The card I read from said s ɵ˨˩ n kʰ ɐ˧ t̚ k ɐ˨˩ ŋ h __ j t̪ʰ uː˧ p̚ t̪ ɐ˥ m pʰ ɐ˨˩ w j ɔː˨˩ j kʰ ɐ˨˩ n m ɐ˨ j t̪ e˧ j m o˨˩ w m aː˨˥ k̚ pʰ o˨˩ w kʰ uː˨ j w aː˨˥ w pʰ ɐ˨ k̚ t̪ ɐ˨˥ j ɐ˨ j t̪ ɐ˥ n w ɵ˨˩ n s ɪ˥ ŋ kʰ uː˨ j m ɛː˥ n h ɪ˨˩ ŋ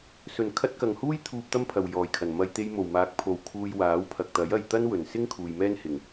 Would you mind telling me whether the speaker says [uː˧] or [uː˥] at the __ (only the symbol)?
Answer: uː˥